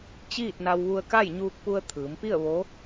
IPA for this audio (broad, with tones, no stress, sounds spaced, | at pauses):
t͡ɕ iː˥˨ t̚ n a˧ w ʋ u˧ ə̯ k a˥˨ j ɲ uː˧ k̚ p u˧ ə̯ t̪ʰ ɯː˩˧ m p i˥˨ ə̯ ʋ o˧˥